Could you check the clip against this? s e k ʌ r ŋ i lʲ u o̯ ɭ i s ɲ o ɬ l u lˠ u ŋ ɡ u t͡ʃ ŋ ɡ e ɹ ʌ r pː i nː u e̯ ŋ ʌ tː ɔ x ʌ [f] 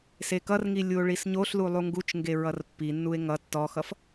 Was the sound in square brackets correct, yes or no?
yes